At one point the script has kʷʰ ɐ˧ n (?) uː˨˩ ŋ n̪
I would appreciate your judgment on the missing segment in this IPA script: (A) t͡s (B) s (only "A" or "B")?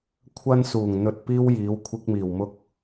B